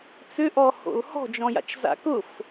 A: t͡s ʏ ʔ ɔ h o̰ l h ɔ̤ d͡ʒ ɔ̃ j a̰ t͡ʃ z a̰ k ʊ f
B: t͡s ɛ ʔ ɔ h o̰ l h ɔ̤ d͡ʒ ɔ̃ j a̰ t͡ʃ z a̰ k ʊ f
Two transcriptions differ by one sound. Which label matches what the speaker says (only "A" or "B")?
A